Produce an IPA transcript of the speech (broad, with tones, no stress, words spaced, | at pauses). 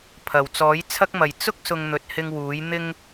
pʰɐ˨˩wt͡sɔː˨˥jt͡sʰɐ˥k̚mɐ˨j t͡sʊ˥k̚ sʊ˧ŋ n̪ɵ˨˥t̚hɪ˧ŋ wuː˨˥j n̪ɪ˧ŋ